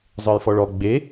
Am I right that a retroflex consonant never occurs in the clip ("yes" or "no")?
no